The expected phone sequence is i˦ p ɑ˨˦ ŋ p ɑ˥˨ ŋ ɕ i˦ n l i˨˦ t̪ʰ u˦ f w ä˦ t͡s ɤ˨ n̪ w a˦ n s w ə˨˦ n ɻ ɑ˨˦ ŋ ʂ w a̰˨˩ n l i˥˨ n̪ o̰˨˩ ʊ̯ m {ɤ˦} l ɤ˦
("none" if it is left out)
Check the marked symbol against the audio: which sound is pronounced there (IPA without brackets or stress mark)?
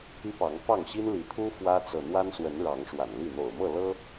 ɤ˥˨